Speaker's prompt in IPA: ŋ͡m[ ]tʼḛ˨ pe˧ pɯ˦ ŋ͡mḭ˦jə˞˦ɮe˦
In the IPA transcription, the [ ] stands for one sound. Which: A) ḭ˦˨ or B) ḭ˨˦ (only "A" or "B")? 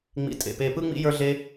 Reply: B